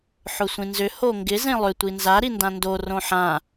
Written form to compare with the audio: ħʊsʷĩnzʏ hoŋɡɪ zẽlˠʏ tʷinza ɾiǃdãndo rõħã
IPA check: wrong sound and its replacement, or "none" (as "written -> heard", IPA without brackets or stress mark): ǃ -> n